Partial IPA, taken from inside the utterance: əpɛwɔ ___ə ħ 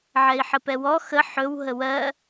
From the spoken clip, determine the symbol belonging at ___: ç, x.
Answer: x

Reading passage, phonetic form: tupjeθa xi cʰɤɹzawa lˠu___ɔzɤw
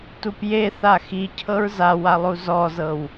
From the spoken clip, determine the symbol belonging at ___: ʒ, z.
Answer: z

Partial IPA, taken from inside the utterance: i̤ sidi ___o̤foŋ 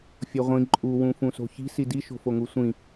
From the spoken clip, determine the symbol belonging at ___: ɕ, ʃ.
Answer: ʃ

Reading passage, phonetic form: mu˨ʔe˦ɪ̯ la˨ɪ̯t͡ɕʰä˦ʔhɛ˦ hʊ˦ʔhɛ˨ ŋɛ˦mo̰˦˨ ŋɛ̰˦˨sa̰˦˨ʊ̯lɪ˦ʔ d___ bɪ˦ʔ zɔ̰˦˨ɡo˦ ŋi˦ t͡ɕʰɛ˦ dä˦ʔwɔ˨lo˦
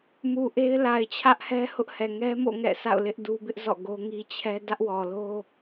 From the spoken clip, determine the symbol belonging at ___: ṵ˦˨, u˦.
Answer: u˦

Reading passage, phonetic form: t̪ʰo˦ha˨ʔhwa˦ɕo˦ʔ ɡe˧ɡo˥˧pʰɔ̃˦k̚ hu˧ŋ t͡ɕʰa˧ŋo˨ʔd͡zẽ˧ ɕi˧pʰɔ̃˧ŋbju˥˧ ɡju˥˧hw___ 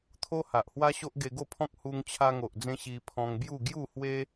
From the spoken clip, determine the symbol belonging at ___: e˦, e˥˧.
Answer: e˦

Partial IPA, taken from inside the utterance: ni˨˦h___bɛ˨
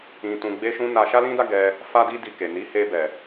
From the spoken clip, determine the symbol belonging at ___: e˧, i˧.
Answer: e˧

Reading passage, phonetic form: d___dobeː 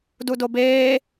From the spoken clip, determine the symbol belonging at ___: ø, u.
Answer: u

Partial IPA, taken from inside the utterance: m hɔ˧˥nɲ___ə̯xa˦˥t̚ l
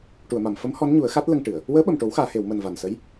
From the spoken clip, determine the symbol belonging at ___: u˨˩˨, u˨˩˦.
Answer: u˨˩˦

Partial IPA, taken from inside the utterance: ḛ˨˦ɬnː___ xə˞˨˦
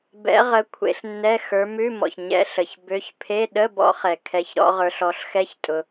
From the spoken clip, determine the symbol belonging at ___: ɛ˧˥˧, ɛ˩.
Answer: ɛ˧˥˧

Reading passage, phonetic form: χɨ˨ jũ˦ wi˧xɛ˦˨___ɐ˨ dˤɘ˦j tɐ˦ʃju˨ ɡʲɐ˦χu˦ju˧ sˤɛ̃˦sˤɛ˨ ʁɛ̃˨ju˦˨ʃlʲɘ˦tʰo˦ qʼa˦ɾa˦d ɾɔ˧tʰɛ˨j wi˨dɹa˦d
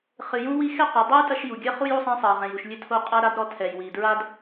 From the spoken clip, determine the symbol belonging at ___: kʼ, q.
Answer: q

